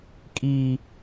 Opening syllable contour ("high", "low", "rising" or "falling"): low